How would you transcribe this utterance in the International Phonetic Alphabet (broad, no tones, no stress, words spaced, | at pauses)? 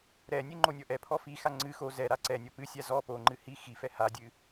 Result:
ɾɛnʲɨ ŋ͡ǃonʲɔʔɛpʰɔ fixa ŋ͡ǀɨ xo zɛ ɾaǀɛnʲɔ pɨsʲa zɔ poŋ͡ǃɨ hi xifɛ hadʲɨ